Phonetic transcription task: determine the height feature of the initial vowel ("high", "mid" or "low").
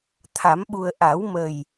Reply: low